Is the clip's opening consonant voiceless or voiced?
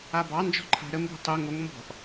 voiced